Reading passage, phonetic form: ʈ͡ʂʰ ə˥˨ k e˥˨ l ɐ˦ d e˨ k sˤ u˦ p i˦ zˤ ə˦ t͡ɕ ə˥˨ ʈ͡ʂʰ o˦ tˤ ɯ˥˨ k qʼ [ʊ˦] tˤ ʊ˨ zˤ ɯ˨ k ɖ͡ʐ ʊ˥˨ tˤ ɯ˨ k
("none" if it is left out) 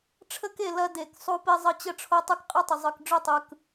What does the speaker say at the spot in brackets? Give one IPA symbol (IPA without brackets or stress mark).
ɯ˦